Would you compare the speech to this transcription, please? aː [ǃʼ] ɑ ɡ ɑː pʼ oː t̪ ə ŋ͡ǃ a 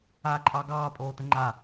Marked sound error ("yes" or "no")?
no